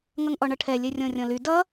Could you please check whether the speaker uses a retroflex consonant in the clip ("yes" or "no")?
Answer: yes